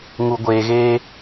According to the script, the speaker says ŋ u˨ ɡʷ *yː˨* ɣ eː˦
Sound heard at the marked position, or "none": eː˨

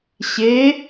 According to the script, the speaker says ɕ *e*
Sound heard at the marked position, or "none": e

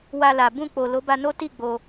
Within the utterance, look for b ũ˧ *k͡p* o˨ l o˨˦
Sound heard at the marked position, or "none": k͡p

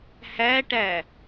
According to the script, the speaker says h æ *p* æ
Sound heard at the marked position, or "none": ʈ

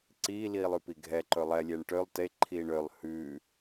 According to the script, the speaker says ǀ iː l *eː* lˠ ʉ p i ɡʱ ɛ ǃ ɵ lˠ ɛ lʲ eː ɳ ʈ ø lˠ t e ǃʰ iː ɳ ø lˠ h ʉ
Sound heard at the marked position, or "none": iː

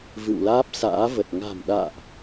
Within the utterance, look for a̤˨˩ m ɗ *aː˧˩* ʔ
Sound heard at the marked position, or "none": a̰ː˧˨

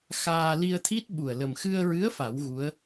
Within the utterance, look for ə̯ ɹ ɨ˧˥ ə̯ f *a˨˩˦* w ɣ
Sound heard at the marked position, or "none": a˨˩˦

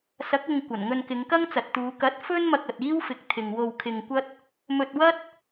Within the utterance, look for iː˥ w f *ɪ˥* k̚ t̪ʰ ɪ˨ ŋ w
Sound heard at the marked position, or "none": ɪ˨˥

